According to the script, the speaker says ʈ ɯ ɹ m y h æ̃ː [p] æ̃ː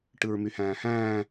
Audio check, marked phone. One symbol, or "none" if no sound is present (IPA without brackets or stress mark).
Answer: h